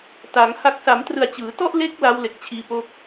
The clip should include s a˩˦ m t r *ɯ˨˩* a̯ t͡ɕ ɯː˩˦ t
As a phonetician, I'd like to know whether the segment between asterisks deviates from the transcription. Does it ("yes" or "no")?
no